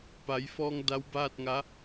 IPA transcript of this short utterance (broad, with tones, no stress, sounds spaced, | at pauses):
p a˩˧ j f ɔː˧ ŋ d a˧˥ w b aː˥˨ t̚ ŋ a˧˥